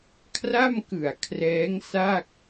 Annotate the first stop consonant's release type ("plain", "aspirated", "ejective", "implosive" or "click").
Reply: aspirated